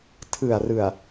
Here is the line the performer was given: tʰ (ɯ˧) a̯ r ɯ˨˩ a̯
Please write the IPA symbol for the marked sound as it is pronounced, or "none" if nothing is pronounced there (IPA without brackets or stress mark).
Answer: ɯ˨˩